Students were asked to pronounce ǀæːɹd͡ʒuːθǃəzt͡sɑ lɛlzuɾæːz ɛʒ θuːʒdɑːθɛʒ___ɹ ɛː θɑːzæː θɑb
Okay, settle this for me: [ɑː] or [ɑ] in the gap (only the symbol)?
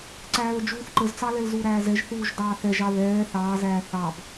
ɑ